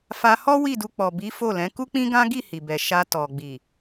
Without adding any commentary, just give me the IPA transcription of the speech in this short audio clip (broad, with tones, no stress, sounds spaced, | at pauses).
f a˧ h ɔ˦ w i˦˨ d u˧ k͡p ɔ˨ b i˨˦ f o˦˨ l ɛ̃˨˦ k u˦ k͡p ĩ˦ ɡ ã˦ ɡ i˦˨ h i˨ b ɛ˨ ʃ a˧ t ɔ˨ ɡ͡b i˨